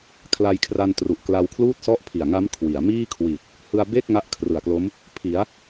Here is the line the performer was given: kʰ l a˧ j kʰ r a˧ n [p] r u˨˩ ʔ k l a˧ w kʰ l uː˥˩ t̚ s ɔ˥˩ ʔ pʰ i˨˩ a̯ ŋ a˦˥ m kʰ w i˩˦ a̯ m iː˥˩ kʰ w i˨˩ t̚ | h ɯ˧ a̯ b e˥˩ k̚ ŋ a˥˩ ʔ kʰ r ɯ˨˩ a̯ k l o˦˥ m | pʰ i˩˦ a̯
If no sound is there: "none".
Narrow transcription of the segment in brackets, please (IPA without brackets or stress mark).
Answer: t